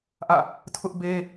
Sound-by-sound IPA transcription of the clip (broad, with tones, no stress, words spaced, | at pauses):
ʔä̰˦˨ | tʰʊ˦ʔbe˦